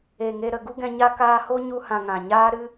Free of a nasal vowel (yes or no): no